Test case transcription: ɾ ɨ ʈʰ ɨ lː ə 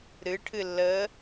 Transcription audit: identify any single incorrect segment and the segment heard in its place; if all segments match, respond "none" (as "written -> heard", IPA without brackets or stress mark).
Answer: none